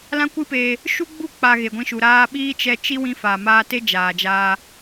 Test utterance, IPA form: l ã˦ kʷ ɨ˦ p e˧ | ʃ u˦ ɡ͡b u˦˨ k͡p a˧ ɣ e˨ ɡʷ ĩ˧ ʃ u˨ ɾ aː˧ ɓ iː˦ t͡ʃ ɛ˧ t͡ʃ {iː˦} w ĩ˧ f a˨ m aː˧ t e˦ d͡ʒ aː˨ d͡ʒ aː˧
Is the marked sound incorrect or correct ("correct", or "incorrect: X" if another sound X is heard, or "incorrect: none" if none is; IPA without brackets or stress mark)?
incorrect: i˦